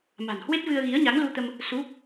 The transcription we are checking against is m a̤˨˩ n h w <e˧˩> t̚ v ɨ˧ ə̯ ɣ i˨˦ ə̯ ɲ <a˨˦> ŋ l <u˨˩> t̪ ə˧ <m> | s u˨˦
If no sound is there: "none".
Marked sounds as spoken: e˦˥, a˨˦, u˧, m

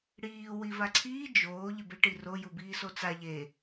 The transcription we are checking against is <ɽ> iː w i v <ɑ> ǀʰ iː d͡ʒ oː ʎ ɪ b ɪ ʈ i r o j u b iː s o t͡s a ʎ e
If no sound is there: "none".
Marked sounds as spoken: ɽ, a

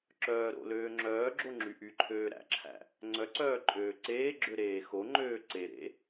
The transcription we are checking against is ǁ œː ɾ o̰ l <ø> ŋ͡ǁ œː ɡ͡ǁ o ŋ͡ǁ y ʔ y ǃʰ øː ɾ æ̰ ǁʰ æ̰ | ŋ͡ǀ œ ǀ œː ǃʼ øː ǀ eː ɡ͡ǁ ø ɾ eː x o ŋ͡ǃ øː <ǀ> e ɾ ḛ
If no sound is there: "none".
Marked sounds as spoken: øː, ǀ

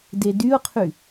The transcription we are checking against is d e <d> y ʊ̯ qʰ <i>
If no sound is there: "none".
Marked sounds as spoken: d, y

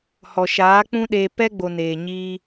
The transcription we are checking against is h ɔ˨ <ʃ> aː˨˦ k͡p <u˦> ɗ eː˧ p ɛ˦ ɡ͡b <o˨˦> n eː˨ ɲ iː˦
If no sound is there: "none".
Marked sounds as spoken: ʃ, ũ˦, o˨

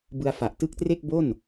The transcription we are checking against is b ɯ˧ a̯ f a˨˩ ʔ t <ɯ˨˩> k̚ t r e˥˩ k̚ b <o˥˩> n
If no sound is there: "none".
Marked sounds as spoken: ɯ˦˥, o˥˩

